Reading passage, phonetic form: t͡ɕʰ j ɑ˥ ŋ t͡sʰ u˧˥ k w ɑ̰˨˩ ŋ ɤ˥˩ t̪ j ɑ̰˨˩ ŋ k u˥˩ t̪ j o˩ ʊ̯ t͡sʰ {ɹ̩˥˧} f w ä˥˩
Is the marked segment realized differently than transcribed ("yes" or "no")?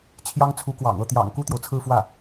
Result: no